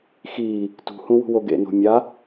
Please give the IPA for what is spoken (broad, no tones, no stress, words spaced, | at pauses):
xiː | tṳhũwṳwo ɡḛno̤ mʲa